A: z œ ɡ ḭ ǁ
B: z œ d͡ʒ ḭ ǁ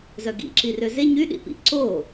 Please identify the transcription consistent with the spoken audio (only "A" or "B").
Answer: A